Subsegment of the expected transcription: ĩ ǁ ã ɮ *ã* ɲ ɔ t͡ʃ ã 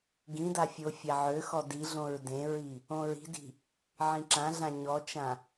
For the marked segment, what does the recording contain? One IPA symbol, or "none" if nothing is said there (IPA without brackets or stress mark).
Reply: ã